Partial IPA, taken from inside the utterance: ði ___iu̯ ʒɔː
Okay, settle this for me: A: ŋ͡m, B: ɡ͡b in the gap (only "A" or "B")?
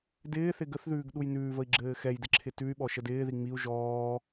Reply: A